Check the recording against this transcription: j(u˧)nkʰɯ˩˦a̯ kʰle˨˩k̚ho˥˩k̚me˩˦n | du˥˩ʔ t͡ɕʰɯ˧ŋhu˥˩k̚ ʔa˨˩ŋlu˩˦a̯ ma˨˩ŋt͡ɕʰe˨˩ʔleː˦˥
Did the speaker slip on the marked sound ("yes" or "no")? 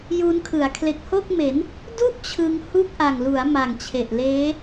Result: yes